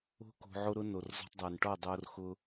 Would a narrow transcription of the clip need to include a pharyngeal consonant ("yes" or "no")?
yes